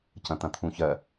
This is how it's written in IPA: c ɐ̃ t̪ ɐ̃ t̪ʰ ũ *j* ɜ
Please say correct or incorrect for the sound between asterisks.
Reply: incorrect